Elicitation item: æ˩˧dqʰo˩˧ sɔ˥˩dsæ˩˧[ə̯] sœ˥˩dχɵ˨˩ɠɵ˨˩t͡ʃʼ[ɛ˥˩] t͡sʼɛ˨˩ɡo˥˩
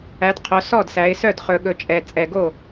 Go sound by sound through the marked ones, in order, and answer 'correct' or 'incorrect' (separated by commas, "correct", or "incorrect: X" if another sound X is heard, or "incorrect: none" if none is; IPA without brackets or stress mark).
incorrect: ɪ̯, incorrect: ɛ˨˩